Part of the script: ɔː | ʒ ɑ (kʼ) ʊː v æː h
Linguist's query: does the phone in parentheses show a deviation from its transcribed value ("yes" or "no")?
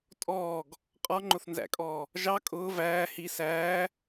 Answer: no